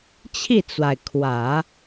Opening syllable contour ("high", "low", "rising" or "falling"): falling